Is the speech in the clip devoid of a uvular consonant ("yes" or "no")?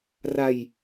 yes